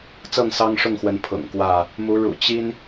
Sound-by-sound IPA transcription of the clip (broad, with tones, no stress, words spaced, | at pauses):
t͡sɤ˥˨ŋsɑ˦ŋʂʊ˥˨ŋxwə˨˦n pʰʊ̰˨˩ŋkwä˥˨ | mu˨˦ɻṵ˨˩ t͡ɕi˦n